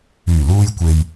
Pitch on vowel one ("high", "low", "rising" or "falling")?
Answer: low